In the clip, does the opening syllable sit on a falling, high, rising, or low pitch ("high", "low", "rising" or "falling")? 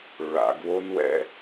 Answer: low